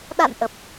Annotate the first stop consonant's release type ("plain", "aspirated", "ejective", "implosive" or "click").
implosive